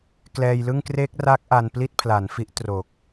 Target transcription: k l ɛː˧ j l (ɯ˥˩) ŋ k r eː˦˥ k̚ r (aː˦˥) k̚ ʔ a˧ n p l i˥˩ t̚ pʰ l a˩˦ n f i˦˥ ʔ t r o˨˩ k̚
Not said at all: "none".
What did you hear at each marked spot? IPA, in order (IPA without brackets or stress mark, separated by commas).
ɯ˥˩, aː˦˥